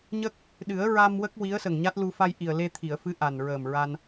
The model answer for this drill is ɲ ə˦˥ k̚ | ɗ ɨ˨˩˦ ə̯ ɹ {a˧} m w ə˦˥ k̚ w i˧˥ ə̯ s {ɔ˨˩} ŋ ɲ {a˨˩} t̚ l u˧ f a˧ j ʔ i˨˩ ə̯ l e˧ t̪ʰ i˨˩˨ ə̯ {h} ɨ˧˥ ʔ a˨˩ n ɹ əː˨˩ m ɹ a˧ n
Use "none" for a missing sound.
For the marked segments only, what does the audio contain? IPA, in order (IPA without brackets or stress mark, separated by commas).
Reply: a˧, ə˨˩, a˦˥, f